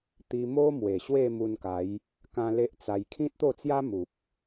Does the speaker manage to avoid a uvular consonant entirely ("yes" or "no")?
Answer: yes